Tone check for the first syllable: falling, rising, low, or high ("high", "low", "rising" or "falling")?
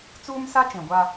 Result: high